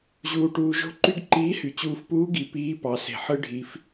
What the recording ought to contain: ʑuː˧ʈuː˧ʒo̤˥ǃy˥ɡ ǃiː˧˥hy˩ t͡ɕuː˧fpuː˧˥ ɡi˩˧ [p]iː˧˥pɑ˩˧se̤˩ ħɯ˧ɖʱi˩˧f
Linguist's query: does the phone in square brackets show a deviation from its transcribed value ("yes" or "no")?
no